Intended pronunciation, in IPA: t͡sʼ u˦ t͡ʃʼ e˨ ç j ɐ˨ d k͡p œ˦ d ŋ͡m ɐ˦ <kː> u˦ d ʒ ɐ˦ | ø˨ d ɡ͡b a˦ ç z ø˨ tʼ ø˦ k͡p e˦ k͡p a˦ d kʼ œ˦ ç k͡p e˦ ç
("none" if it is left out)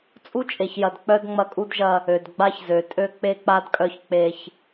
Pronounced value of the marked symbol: kʼ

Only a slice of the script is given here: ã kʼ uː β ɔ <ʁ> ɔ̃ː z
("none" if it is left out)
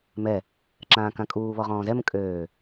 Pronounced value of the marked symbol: ʁ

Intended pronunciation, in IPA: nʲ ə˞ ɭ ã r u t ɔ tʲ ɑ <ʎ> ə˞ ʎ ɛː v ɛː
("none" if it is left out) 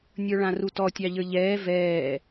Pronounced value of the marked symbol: ʎ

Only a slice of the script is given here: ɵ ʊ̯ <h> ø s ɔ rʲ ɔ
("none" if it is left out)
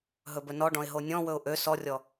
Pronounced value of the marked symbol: ʔ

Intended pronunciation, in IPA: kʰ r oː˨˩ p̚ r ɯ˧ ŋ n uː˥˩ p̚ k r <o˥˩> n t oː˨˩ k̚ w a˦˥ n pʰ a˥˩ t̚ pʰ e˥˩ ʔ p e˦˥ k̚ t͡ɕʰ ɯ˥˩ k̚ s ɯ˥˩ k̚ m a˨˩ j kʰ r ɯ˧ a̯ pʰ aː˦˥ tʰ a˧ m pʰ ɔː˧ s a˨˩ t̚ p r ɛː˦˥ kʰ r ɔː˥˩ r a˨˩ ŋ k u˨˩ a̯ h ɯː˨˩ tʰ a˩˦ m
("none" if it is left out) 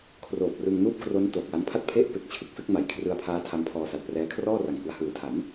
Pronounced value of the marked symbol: o˦˥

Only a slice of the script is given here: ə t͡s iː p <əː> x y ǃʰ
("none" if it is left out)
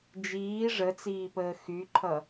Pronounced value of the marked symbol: əː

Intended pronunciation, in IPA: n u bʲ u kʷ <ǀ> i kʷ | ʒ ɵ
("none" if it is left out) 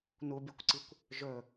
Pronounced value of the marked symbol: ǀ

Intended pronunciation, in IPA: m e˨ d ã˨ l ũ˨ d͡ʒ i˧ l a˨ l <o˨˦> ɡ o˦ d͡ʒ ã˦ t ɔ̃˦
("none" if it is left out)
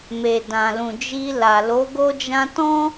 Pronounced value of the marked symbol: o˨˦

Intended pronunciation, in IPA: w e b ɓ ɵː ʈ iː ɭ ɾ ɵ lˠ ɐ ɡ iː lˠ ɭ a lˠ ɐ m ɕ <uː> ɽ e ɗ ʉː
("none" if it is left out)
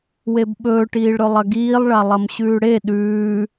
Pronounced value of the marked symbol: ʉː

